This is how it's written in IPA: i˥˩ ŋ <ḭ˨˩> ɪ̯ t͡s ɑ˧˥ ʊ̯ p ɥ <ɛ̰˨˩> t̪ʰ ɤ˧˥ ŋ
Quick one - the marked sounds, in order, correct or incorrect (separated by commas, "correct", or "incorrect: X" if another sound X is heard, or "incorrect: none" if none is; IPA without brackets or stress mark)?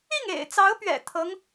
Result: incorrect: ḛ˨˩, correct